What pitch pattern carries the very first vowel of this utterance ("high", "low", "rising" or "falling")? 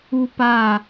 high